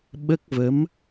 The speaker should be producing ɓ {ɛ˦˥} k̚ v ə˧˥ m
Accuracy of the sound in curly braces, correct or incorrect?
incorrect